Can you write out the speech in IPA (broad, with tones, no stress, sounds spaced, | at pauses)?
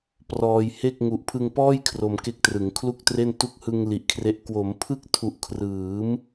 p r ɔː˧ j h e˥˩ k̚ ŋ u˨˩ ʔ pʰ ɯ˧ ŋ p ɔː˥˩ j kʰ r o˧ m k e˦˥ k̚ t r ɯ˩˦ ŋ kʰ l u˥˩ k̚ t r e˥˩ n t u˦˥ k̚ h ɯ˧ ŋ l i˨˩ ʔ kʰ r e˦˥ ʔ k w o˩˦ m pʰ ɯ˥˩ k̚ tʰ u˨˩ ʔ kʰ r ɯː˩˦ m